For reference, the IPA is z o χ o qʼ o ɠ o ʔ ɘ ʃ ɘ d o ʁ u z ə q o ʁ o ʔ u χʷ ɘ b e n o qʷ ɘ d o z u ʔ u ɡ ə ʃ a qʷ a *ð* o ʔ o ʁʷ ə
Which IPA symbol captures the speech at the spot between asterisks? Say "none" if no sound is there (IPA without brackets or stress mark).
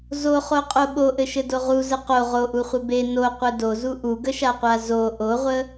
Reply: z